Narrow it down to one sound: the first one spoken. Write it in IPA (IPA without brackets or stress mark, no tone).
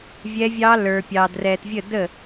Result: vʲ